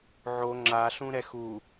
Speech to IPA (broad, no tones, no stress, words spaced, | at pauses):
ʕo ŋ͡ǁaɬũ ɾɛxu